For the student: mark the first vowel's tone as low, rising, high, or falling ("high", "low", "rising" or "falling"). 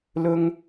high